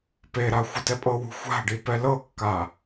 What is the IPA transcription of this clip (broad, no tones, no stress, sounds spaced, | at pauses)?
p e ɾ a xʷ ɯ t ɛ pʼ ɤ w ṳ xʷ a̤ ɖ i p ɛ l ɤ kː a